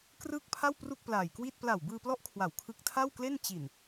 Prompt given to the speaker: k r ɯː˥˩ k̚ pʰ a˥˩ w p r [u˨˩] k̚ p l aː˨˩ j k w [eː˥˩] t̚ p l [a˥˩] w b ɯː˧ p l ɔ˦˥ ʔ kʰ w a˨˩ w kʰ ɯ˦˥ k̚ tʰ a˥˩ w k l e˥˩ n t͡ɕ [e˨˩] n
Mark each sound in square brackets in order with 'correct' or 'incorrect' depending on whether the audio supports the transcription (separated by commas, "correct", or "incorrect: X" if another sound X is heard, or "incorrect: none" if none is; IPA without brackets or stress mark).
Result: incorrect: u˥˩, incorrect: iː˥˩, incorrect: a˨˩, incorrect: i˨˩